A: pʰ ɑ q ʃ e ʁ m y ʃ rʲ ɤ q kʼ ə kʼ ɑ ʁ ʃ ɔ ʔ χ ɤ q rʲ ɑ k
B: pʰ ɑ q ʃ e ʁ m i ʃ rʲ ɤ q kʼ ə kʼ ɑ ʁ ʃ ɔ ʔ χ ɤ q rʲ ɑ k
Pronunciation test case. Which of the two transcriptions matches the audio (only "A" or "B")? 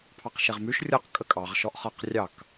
A